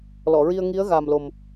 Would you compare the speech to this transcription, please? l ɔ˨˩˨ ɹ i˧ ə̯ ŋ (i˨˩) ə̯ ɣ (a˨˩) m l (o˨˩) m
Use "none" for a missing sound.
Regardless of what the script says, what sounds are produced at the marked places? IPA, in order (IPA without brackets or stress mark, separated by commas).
i˧˥, a˨˩, o˨˩